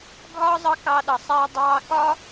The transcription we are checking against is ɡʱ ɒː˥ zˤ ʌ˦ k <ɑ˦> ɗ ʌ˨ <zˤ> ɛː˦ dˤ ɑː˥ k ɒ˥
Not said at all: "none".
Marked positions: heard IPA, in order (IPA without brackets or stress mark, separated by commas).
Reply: ɑ˦, sˤ